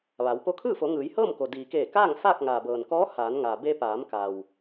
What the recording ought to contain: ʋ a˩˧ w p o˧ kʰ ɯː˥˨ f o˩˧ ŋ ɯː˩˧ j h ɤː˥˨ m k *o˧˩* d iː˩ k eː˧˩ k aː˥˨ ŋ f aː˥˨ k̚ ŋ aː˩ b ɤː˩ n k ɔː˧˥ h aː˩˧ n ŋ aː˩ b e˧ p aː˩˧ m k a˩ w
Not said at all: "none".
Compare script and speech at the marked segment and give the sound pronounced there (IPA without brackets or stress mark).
o˩